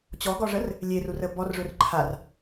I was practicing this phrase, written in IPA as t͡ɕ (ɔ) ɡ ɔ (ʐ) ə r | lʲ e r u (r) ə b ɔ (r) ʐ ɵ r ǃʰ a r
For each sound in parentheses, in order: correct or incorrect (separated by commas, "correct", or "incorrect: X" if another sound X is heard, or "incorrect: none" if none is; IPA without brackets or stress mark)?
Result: correct, correct, correct, correct